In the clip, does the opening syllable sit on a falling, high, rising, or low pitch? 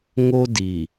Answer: high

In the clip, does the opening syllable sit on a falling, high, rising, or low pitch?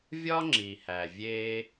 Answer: high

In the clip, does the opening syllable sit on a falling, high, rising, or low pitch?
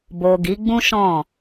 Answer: low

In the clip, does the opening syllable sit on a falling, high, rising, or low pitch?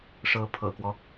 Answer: rising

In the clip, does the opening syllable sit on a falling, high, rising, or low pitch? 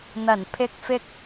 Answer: low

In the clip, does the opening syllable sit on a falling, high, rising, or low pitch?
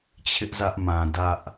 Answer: high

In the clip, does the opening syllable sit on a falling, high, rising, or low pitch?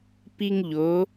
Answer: high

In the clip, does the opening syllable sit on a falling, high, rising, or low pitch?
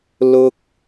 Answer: high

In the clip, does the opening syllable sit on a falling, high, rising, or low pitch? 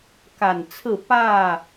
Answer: low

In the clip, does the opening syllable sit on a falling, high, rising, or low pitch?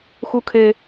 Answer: high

